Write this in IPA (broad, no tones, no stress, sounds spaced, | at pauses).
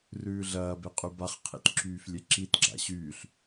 r ʉː ɮ ɐː b e qʼ y b a χ qʰ ḭ t ǁ yː f lʲ e ǁ i t ɡ͡ǁ a̰ ɕ yː ɬ